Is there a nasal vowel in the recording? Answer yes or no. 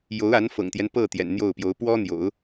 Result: no